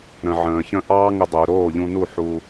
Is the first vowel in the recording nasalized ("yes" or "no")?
yes